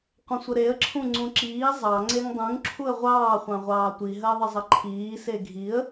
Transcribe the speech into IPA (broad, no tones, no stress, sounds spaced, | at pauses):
qʷ ə̃ sʷ ə ɾ e ə̯ ǁʰ ũ ŋ͡ǀ ũ ǁ iː zˤ ɑ ŋ͡ǀ e ŋ dˤ ũ ŋ ǁʰ u ə̯ ʁʷ ɑː χʷ ɑ̃ ʁʷ ɑː tʷ i ɦ əː ðˤ ə zˤ ə ǃʰ iː s e ɡʱ i ə̯